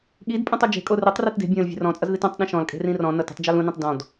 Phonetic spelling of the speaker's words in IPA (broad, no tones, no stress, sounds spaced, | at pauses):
ɠ i d pʼ ũ tˤ o d͡ʒ e̤ kʼ o r i tˤ r i t d e̤ bʲ ə̃ː l vʲ e̤ r ɔ̃ t͡sʼ ʌ z ð i t õ tˤ ɗ ẽ ʃ ɔ̃ l kʼ e̤ r ĩ r ɔ̃ n ʌ t e̤ tˤ d͡ʒ ɔ l ũ n ĩ tˤ d ɔ̃ d